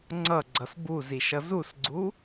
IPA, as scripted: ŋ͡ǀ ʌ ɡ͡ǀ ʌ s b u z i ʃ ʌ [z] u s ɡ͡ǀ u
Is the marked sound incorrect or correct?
correct